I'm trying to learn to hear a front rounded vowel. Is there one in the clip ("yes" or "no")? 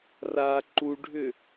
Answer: yes